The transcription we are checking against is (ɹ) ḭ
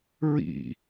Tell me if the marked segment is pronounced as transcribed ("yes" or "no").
yes